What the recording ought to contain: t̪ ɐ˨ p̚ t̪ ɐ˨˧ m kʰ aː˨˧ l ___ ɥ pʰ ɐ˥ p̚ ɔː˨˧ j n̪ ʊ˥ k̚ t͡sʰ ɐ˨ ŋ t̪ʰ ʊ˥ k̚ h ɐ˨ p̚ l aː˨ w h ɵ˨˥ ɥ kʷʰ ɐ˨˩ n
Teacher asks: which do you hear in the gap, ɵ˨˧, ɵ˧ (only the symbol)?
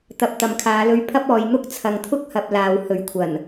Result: ɵ˧